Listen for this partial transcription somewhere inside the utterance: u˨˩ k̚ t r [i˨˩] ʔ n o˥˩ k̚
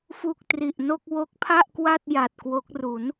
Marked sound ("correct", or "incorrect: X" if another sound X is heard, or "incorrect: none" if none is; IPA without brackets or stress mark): correct